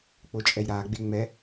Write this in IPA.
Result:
k͡pot͡ʃʼɛjɾaːɡ͡be ŋ͡mɛ

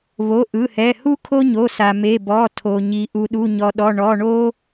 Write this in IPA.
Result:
βo˩˧˩ʔɯ˩˧˩hɛ˩˧˩ hu˥kʰo˥ɲo˩˧˩sa˩ me˩˧˩bɔ˩˧˩tʰo˩ ɲi˩ ʔu˩ɗu˩˧˩ɲɔ˩ɗɔ˩˧˩ ɳɔ˩˧˩ɳo˥

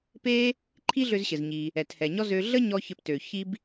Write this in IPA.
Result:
pe˥ | ǃʰi˥ɮø˧zɕɘ˩z ɲi˩ | ɛ˩thɛ˩ɲɔ˥ zø˧ ɮə˥ɲɔ˧ çɘ˧ptø˩ çi˧b

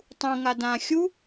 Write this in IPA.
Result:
tˤũ ŋadã xʲu

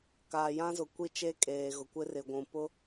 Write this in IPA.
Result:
kaː˨jã˦zʊ˨kʷi˦ t͡ʃe˦kʼeː˨ɣʊ˨ kʷɪ˦rɪ˨ɡʷũ˨ pʊ˦

